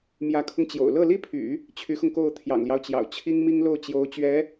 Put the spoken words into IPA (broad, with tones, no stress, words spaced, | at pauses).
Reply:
mjä˧˥kʰʊ˧ŋt͡ɕjo̰˨˩ʊ̯ lɤ˥˩li˥pʰy̰˨˩˦ | t͡ɕʰy˧˥xʊ˧ŋko˥˩ʊ̯ t̪ʰjɑ̰˨˩ŋljɑ˦ʊ̯t͡ɕjɑ̰˨˩ʊ̯ t͡ɕʰi˥ŋmi˥ŋlo˥˩ʊ̯t͡ɕjo˧˥ʊ̯ t͡ɕɥɛ˧˥